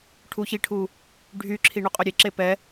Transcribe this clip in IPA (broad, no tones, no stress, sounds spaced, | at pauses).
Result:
ʈʰ u ç i ʈʰ u | ɖʱ y ǁʰ i ɳ u qʼ ø ɾʲ e ǁ e p ɛ